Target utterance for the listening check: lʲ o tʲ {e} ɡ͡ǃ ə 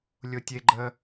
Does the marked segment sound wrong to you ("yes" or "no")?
no